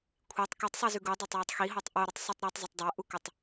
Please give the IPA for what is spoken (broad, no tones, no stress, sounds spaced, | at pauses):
kʷʰ i tˤ k u tˤ sˤ i z ʉ ɡ u dˤ a tˤ j a tˤ x i ɦ o tˤ ʔ o ɾ ɨ tˤ sˤ u tˤ ɾ e tˤ zˤ ɐ tˤ dˤ a ʔ u k ɐ tˤ